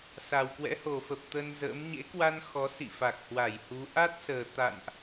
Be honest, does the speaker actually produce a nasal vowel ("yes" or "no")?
no